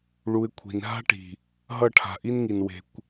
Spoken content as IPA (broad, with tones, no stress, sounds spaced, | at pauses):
ɭ u˧ ɪ̯ kʷʰ i̤˨ n ɦ a̤˦ ʈ i̤˨ | ɦ ʌ˦˨ ʈʰ a̤˨ ʔ i˦ n ŋ i˨ n w e̤˧ kʷ